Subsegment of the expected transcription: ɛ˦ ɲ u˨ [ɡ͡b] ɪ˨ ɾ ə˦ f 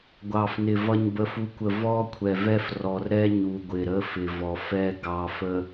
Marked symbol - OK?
no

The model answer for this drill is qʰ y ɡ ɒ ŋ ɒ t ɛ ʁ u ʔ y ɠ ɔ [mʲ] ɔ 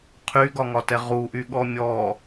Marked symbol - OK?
yes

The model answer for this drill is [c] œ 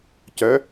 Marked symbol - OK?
yes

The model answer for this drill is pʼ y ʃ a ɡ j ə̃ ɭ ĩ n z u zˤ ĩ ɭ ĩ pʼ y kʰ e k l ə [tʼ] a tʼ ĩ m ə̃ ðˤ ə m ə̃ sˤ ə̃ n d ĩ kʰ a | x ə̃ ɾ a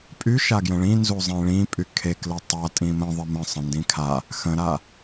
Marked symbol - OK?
no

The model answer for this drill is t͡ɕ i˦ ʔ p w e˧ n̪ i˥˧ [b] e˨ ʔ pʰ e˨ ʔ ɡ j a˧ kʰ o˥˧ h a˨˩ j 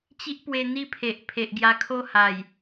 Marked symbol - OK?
no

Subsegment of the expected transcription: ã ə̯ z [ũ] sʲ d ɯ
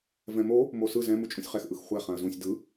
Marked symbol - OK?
yes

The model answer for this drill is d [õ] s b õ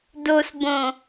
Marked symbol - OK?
no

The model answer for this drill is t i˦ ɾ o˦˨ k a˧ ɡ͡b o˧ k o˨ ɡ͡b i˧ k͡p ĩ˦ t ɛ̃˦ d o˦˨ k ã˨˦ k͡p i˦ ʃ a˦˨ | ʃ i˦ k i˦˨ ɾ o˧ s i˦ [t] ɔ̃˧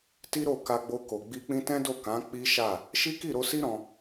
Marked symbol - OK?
no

